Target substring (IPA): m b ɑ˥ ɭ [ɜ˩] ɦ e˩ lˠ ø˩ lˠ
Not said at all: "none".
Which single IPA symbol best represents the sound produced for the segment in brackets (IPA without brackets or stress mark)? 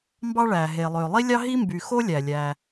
æ˩